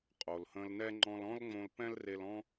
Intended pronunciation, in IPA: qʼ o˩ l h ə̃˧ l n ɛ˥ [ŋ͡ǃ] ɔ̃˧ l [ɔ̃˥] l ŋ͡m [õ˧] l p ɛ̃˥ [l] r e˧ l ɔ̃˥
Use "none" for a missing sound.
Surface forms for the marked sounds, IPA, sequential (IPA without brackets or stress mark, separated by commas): ŋ͡ǃ, ɔ̃˥, õ˧, l